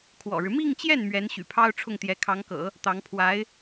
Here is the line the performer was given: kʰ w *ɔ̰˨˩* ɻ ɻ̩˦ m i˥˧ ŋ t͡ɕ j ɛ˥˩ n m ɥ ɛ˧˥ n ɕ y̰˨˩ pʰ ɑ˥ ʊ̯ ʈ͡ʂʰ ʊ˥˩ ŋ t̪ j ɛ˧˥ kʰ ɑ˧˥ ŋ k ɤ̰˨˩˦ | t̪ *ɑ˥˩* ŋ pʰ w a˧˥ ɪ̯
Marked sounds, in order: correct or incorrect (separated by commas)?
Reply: correct, incorrect